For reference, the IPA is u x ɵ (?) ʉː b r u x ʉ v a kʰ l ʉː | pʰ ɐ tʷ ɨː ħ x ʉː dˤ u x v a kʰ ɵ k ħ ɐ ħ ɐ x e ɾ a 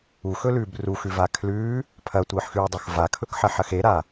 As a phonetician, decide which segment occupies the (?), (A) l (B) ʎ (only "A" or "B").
A